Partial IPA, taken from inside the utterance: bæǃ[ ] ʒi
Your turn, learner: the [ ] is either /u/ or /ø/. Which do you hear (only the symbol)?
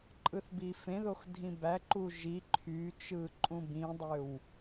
u